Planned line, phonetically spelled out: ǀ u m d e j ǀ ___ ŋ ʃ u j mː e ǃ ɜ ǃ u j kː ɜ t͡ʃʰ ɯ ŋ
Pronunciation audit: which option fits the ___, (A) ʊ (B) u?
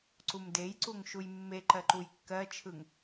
B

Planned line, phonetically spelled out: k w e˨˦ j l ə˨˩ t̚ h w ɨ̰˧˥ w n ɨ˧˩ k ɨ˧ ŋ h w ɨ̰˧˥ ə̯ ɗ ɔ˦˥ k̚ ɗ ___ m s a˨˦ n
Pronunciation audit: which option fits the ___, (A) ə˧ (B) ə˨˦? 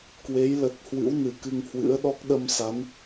A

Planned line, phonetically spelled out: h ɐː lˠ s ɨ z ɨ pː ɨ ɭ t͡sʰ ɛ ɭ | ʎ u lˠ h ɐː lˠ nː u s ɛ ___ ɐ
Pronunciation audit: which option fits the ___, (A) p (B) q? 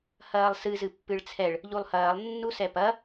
A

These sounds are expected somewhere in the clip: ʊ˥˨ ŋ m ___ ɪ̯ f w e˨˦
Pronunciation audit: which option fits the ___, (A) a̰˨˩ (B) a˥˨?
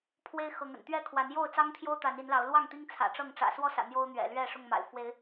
A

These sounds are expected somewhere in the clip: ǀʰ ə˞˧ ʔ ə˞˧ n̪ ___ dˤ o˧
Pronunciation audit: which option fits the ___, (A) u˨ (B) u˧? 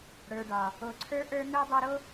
B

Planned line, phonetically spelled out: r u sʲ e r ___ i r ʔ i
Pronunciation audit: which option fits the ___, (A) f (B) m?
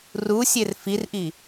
A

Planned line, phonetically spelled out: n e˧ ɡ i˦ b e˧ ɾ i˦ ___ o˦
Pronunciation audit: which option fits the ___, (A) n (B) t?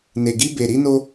A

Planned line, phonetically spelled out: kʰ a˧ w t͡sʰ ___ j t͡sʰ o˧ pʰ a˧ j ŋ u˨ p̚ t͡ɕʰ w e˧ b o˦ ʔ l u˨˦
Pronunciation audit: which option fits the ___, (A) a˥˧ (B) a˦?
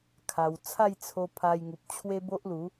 A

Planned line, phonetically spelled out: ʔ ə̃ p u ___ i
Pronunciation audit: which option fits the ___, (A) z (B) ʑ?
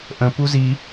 A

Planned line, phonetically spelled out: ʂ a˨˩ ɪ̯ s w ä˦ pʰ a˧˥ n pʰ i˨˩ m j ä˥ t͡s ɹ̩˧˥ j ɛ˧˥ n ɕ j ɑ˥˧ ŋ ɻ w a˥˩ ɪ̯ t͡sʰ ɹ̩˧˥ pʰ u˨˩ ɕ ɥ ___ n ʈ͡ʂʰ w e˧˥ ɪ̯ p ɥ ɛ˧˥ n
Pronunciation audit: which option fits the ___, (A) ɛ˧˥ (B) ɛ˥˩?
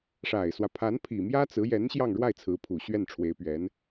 B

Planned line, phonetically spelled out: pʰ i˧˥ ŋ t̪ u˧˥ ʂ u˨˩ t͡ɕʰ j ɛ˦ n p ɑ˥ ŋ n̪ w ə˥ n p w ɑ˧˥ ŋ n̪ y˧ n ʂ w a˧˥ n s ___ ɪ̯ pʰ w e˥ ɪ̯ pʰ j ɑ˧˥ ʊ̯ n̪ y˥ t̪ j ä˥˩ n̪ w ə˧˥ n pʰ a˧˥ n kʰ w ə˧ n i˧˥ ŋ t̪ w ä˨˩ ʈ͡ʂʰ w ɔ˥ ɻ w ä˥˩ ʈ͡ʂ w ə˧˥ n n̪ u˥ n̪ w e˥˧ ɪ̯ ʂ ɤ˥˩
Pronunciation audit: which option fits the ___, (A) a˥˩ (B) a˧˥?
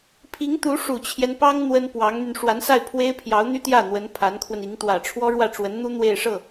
A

